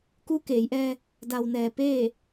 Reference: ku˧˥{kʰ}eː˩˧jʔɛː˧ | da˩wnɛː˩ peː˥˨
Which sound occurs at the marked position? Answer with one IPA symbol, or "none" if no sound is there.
k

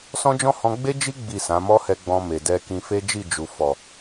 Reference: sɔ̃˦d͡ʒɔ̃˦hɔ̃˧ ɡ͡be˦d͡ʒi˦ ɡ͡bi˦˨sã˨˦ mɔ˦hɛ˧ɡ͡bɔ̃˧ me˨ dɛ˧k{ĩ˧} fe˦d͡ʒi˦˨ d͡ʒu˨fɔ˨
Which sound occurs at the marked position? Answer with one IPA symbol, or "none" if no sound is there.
ĩ˧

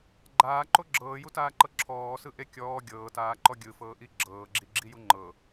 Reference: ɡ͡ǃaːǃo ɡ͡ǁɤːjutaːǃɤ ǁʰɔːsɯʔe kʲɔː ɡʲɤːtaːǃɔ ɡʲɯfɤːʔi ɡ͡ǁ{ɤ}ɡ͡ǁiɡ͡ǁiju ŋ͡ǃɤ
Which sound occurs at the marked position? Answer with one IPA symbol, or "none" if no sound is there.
ɤː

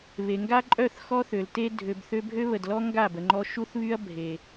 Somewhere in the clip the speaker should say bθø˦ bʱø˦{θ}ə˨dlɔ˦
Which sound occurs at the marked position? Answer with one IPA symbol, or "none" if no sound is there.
β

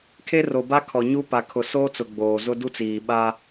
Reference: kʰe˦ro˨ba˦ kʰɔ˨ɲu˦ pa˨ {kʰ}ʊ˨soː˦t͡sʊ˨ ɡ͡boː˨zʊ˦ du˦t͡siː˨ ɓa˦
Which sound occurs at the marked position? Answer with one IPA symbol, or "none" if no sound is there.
kʰ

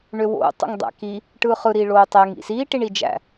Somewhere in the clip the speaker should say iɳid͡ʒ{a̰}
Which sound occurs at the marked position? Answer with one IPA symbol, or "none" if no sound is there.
æ̰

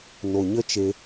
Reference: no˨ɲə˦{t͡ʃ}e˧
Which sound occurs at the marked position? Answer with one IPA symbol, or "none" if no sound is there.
t͡ʃ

